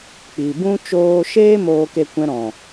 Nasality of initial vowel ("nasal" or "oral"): oral